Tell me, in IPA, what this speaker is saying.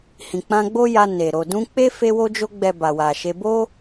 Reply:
h ĩ˨ k͡p ã˧ ɡ͡b o˦ j a˧ n e˨ ɾ o˨ d ũ˧ k͡p e˦ f e˧ w o˧ d͡ʒ o˧ ɡ͡b ɛ˨ b a˨ w a˨ ʃ e˧ b o˦

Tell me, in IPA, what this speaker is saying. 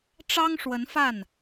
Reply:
ʈ͡ʂ ɑ˥ ŋ ʂ w ə˧˥ n f a˥˩ n

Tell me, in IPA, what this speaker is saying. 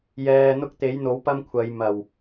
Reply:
j ɛː˧ n̪ ʊ˥ k̚ t̪ e˨˥ j n̪ o˨˥ w p ɐ˥ m kʷʰ ɐ˨˧ j m ɐ˨˩ w

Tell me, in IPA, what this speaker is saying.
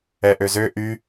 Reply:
ɛ ʔ ø z ø ʔ y

